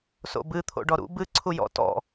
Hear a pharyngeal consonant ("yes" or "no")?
no